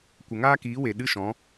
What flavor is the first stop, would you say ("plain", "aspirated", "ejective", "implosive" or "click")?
plain